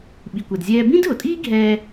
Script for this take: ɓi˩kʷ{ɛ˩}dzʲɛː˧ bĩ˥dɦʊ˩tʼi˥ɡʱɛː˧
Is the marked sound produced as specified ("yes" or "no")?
yes